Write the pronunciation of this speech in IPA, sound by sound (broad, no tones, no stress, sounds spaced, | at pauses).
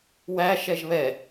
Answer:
w æ ʃ ɛ ʒ β ɛ